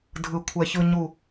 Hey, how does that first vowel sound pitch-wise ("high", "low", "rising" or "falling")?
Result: low